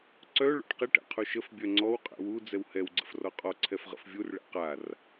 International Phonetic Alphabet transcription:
ǀ œ ɭ ɔ̰ ʈ q e ʈ ɛ̰ qʰ u ʃ ə f bʲ œ ŋ͡ǀ ɔ w qʼ ɛ̰ w u d͡z ɛ w h ɛ w ɡ͡ǀ ə̰ f r ɔ qʼ ɔ ǀʰ ɛ f ʁ ə̰ f vʲ u r ɭ ɛ̰ q a r

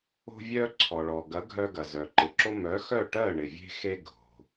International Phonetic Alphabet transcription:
o̤˧ vʲ œ˧ ǀʰ ɔ˩ ɭ ɔ˩ ɡ ɐ˩˥ ɡʱ œ˧ ɡ ɐ˩ z œ˩ ǃ ɪ˩˥ ǁ o˥ m œ˩˥ x œ˥˩ ʈ ɜ˥˩ ɳ ɪ˩ vʲ e̤˥ x e˥ ɡʱ o̤˩

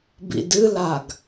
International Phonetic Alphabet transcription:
b ḭ d ɨ l a ɡ

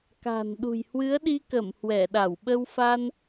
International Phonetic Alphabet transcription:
k a̤˨˩ n ɗ ṳ˨˩ j h w ɨ˨˦ ə̯ ɗ i˧ k ə˧˩ m h w ɛ˧˩ ɗ a˧˩ w ɓ ə˧ w f a˧ n

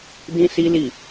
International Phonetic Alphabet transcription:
d ĩ˦ s i˦ l i˦˨

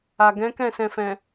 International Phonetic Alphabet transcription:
a˨ ɡ ɛ̃˨˦ k ɛ̃˦˨ s ɛ̃˨ f ɛ̃˨

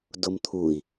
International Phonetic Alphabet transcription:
d o m t̪ʰ u i̯

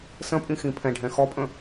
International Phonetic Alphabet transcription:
s ə̃ pʼ ĩ x ĩ pʰ ɛ̃ ɖʱ ɛ̃ x ɔ pʼ ə̃

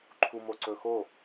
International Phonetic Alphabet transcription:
ǃʰ u m o ǀ ɵ x o

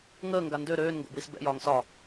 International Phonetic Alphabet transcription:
ŋ əː ŋ ɡ a n d ø ɾ øː n ŋ ɡ o̰ b w i s b ɛ̰ j ɒː ŋ s ɒ

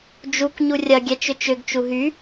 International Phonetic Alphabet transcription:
d͡ʒ u k ɲ u rʲ ɐ ɡʲ ɛ t͡ʃ ʏ t͡ʃ ʏ ɡ t͡ʃ u ɦ y

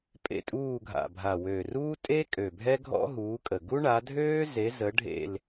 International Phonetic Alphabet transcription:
pʼ ḛ˦˨ tʼ uː˦˨ ɡʱ a̰˨˩ bʱ a˨˩ w ø˨˩ r uː˥ tʼ e˥ kʼ ø˨˩ bʱ ɛ˥ ɡʱ ɔ̰˥ ɦ uː˨˦ kʼ ə˨˩ ɡ u˥ ɳ a˨˦ dʱ øː˥ z e˨˦ z ə˨˦ ɖʱ ḛ˦˨ l

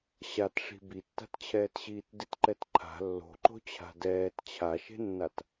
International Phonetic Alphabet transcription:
ɕ a t ʂ i̤ b i tː a̤ t t͡ɕʰ ɛː t ɕ iː t d i t ǃ ɛ t ǃʰ a̤ lː o̤ ǃ o̤ t͡ɕʰ a̤ d ɛː t t͡ɕʰ a ʃ e̤ nː a t

